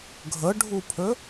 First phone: ɡʱ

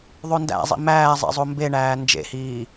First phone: ðˤ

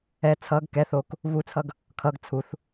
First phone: ɛ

